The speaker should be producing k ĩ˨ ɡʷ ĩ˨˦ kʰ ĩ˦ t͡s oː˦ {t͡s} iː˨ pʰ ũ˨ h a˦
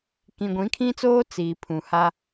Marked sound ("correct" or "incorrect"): correct